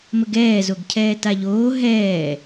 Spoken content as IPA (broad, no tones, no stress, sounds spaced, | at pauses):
m ə ɡ ɛː z o ɡ cʰ ɛː t a ʎ oː ɦ ɛː